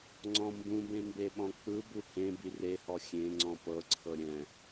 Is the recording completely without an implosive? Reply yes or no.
no